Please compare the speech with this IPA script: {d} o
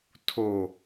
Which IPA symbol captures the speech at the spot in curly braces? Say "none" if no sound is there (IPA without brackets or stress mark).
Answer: tʰ